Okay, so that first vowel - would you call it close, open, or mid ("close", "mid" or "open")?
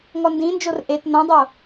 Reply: mid